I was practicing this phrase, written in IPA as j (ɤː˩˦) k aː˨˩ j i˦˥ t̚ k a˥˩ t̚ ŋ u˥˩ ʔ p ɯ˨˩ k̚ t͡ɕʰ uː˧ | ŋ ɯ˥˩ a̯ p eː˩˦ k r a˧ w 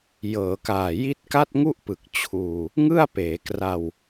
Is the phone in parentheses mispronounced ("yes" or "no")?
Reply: no